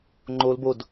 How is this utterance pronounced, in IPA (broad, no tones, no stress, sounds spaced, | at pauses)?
ŋ͡ǃ o l b o d